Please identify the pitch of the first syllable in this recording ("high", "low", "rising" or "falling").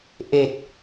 low